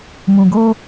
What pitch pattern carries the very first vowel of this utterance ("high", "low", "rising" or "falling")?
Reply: low